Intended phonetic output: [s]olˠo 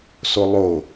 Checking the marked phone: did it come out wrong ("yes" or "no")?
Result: no